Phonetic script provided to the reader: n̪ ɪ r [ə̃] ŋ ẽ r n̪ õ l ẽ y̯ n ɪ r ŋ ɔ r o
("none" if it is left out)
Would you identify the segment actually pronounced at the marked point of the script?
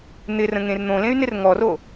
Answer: ə̃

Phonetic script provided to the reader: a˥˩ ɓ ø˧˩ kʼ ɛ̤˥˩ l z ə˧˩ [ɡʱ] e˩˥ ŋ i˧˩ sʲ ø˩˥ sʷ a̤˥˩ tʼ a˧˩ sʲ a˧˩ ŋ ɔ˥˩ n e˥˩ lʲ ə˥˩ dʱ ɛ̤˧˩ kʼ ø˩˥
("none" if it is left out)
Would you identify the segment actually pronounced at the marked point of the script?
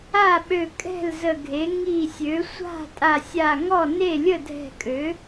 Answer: ɡʱ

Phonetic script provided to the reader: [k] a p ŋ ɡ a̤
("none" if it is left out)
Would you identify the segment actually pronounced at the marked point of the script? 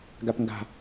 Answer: ɡ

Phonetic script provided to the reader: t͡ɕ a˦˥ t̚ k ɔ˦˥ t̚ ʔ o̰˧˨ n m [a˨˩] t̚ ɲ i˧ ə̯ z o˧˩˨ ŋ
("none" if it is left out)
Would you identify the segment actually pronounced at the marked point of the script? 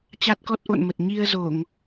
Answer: ə˨˩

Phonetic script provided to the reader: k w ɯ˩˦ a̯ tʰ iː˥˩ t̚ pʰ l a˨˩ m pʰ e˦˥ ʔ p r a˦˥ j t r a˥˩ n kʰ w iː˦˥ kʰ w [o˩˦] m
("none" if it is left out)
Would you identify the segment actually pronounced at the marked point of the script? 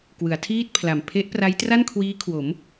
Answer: o˩˦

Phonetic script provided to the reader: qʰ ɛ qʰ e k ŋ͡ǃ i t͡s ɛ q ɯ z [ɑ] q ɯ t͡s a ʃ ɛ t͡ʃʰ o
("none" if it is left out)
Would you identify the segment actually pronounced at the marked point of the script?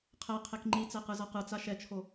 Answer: ʌ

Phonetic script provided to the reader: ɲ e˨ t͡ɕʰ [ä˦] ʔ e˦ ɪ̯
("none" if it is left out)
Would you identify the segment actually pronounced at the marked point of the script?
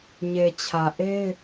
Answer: ä˨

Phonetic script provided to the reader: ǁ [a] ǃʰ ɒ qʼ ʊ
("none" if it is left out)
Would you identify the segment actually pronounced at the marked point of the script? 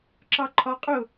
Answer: ɑ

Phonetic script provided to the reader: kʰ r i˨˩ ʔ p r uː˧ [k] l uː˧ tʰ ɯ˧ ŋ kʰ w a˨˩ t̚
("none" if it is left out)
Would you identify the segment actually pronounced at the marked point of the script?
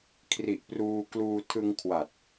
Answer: k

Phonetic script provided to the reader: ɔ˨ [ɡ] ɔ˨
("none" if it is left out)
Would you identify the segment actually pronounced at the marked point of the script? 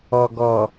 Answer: ɡ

